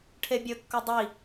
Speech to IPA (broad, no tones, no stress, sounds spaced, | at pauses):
ʈʰ e bʲ ɵ kː o dˤ i